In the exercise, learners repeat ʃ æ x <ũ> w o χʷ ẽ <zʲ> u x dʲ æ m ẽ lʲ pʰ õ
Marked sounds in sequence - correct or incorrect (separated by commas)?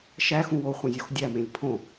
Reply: correct, correct